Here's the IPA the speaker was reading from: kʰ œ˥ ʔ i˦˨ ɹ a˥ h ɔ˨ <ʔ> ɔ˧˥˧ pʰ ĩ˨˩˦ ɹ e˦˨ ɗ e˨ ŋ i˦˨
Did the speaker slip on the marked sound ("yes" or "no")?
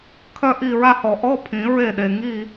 no